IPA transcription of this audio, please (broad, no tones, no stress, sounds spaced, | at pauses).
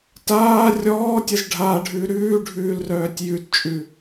t aː rʲ ɔː tʲ ɘ z ɖʱ a ɖʱ ʉ ɾ ʉː ɖʱ ʉː l r œː tʲ j ʉ t t͡ʃʼ ʉ